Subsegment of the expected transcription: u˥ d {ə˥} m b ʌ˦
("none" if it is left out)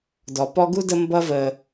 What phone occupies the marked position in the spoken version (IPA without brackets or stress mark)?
ə˦